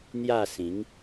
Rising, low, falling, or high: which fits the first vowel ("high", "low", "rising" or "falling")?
falling